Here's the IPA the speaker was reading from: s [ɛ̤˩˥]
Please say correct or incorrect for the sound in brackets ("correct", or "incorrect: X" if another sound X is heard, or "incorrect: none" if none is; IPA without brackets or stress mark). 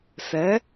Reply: incorrect: ɛ˩˥